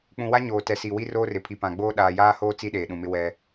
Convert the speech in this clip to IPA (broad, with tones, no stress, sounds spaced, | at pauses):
k͡p ũ˨ w a˦ ɲ oː˨ t ɛ˨ s i˨ w i˦ r oː˦ r ɪ˨ pʰ i˨ p ã˨ ɡ͡b oː˦ ɗ aː˨ j aː˦ h oː˦ t͡s i˦ ɗ eː˨ ɗ ũ˨ m ɪ˦ w ɛ˦